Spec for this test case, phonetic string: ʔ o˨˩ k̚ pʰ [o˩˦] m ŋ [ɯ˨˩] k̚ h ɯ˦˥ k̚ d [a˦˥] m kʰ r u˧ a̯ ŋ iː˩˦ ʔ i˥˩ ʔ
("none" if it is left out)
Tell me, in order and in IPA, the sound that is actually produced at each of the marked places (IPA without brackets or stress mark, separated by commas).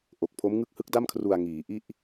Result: o˦˥, ɯ˦˥, a˥˩